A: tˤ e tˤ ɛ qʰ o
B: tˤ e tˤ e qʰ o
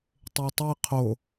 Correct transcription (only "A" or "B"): B